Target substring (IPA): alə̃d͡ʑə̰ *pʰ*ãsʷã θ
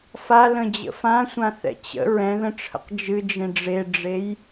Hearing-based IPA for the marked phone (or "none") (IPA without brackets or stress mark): f